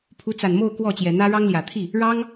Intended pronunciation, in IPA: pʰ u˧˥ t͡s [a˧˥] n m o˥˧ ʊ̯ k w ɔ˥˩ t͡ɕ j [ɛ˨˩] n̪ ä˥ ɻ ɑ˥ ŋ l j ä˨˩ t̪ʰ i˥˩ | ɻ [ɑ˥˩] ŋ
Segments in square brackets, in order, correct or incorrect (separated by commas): incorrect, correct, incorrect